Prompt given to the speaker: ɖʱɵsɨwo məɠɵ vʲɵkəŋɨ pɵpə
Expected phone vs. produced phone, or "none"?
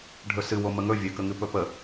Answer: ɠ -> ŋ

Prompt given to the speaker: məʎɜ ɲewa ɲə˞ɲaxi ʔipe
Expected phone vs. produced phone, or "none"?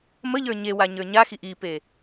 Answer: ɜ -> ə˞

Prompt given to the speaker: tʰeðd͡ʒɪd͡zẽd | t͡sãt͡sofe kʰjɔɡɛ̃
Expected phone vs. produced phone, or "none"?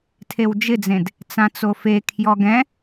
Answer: ð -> w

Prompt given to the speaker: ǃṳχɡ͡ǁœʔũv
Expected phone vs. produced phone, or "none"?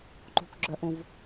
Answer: χ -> k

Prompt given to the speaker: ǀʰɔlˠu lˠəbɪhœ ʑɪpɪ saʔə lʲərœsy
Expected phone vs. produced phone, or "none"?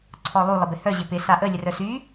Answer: none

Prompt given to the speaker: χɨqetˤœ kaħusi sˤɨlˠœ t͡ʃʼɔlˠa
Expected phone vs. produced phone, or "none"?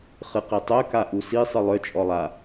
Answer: ħ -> ʔ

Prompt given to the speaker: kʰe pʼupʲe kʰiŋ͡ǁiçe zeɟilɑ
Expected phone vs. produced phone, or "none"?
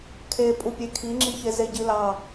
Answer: none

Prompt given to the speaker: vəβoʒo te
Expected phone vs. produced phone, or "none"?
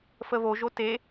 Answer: v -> f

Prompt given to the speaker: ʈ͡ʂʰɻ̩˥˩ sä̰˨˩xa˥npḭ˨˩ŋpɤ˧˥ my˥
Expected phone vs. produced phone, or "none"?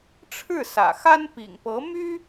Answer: none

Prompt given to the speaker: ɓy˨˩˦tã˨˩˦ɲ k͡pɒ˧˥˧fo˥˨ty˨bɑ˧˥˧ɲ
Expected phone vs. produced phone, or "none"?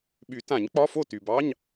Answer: none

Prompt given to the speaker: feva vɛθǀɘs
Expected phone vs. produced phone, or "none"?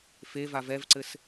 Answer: θ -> v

